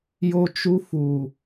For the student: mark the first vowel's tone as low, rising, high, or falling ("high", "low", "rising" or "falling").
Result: high